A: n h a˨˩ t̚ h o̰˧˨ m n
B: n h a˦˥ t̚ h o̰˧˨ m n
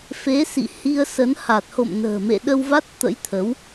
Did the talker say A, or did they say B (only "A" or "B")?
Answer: A